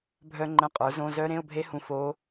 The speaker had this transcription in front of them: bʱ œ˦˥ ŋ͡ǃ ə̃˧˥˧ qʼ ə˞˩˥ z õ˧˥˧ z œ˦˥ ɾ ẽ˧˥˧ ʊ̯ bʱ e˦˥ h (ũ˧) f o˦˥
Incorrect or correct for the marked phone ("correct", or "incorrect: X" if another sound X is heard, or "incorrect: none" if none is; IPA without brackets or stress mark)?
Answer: correct